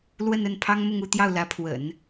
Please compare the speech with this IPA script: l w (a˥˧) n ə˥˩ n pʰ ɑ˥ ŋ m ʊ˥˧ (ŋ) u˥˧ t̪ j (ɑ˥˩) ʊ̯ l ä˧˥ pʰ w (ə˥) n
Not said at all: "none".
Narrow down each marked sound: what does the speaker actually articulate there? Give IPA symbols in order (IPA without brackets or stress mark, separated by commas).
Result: ə˥˧, ŋ, ɑ˥˩, ə̰˨˩˦